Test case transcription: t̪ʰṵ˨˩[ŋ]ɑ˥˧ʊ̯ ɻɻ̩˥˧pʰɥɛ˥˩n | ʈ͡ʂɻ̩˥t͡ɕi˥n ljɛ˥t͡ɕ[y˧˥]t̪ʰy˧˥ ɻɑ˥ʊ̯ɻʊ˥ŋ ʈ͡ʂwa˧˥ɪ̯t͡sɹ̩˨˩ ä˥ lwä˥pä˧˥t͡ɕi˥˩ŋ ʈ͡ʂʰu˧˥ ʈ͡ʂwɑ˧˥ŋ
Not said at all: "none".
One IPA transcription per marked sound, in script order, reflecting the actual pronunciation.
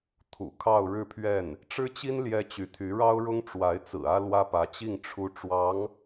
kʰ, y˧˥

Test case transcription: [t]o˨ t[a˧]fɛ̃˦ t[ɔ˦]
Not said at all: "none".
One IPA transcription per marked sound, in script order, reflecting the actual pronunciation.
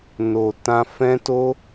n, ã˧, o˦

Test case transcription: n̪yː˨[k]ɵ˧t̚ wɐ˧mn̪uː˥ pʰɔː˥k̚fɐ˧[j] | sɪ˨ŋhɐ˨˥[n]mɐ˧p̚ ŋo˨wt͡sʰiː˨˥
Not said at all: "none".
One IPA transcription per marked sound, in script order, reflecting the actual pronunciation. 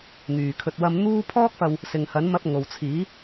kʰ, w, n

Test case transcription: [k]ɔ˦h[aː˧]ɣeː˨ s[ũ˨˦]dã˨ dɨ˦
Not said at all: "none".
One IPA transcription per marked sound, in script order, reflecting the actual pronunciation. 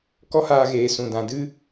k, aː˧, ũ˨

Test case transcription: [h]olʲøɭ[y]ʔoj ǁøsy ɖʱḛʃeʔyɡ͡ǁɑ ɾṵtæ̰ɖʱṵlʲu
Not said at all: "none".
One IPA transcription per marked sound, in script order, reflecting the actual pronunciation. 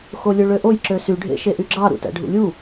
x, ø

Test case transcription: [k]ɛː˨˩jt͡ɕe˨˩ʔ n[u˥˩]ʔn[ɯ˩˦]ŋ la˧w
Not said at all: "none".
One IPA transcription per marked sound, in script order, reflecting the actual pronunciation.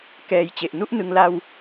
k, u˥˩, ɯ˧

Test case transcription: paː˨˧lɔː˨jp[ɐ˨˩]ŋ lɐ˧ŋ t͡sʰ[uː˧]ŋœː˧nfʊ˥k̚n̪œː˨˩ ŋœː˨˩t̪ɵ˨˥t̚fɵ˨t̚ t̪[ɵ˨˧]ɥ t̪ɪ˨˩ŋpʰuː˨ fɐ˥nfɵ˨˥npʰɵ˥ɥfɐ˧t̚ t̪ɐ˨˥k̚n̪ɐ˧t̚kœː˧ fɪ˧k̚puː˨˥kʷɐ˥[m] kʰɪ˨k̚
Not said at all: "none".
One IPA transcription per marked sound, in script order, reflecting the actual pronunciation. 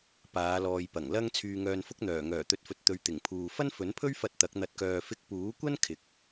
ɐ˨˩, yː˧, ɵ˨˧, n

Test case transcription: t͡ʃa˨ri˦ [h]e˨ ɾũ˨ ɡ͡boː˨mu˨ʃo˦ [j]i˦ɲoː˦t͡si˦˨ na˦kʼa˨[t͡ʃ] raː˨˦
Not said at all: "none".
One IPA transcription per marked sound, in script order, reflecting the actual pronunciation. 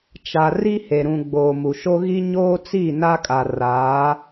h, ɣ, none

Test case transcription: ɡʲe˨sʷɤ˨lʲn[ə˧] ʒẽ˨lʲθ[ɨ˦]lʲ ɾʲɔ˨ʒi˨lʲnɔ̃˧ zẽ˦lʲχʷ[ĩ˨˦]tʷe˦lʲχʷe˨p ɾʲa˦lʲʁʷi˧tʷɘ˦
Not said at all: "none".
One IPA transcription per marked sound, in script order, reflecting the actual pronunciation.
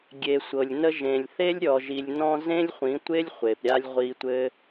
ə˧, e˦, ĩ˨˦

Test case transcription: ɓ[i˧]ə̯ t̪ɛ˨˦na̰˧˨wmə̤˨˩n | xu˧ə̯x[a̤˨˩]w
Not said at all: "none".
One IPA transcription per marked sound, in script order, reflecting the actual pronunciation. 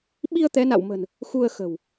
i˧, ə̤˨˩

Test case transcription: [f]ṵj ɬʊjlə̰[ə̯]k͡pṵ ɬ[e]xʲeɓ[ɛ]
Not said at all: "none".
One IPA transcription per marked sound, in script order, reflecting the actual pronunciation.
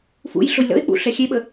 f, ɪ̯, ɛ, ə

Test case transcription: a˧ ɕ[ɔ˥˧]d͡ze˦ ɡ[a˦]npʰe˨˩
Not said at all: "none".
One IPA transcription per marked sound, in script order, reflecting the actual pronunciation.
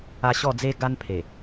ɔ˥˧, a˦

